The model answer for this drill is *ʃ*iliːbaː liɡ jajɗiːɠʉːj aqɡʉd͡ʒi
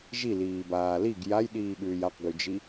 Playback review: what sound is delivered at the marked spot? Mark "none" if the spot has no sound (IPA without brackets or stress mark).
ʒ